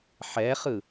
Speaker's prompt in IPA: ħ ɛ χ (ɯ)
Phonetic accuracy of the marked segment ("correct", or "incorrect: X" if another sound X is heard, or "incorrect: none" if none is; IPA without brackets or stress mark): correct